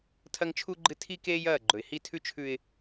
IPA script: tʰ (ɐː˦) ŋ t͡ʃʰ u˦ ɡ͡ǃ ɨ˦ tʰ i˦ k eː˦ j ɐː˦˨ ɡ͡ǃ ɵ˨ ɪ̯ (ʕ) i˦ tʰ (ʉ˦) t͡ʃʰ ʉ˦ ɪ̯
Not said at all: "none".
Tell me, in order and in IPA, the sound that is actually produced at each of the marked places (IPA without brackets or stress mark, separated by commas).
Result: ɐ˦, h, ʉ˦